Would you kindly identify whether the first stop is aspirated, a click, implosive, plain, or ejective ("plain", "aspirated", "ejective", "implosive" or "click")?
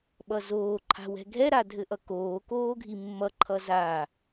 implosive